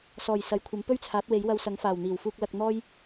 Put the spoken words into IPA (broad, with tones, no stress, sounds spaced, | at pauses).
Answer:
s ɔː˨˩ j s ɐ˨ j kʷʰ ɐ˨˥ m p ɵ˥ ɥ t͡sʰ aː˨˥ t̚ w e˨˥ j w ɐ˧ w s ɐ˨˥ ŋ f aː˨˩ w n̪ iː˨˩ w f uː˧ k̚ l ɐ˧ k̚ n̪ ɔː˥ j